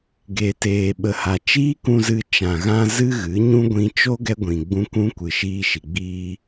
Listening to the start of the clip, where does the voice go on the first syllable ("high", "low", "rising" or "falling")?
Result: low